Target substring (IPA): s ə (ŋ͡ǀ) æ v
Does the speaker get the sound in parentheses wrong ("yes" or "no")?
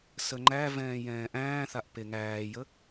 yes